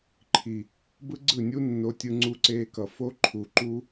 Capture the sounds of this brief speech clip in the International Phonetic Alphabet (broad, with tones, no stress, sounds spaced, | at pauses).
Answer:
ǃʰ i˨ | b ɯ˦ ɡ͡ǀ ɯ˦˨ nʲ u˦ nː o˧ tʲ ɯ˧ ŋ͡ǀ u˧ ǀ eː˧ k ʌ˨ f o˦ ǃʰ u˨ ǃ u˧